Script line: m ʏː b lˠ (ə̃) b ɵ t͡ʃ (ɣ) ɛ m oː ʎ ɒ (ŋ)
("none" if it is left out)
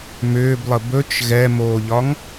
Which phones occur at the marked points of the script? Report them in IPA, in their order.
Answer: ə, ɣ, ŋ

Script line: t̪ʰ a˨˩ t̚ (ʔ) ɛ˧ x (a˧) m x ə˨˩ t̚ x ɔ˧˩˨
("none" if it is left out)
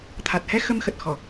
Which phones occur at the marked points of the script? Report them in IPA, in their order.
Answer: h, ə˧

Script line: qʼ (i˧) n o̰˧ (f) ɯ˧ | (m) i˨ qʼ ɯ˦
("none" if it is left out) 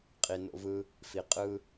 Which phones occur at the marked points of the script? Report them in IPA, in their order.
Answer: i˨, v, f

